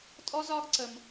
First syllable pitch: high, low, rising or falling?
high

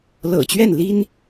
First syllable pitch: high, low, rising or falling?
low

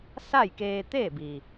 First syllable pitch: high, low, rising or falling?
falling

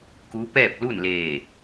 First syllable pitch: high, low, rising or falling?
rising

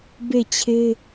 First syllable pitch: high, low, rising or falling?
falling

